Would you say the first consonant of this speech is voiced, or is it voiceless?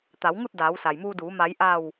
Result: voiceless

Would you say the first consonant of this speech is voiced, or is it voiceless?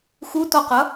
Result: voiceless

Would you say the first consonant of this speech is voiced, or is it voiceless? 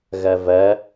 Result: voiced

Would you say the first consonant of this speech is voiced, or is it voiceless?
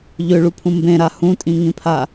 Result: voiced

